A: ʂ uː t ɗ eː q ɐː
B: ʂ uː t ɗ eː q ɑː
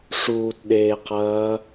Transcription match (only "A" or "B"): A